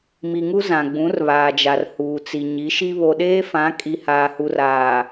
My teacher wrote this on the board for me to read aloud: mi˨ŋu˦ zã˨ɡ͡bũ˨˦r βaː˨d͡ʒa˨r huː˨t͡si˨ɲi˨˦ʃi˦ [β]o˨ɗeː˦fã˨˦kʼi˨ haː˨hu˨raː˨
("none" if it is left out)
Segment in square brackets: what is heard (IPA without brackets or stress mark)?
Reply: β